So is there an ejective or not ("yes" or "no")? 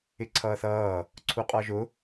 yes